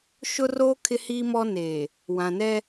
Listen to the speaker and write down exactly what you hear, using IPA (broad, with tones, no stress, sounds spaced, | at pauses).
ʃ ʊ˦ r oː˦ kʰ ɪ˦ h iː˦ m ɔ˦ n eː˨ | w ã˨ n ɛ˦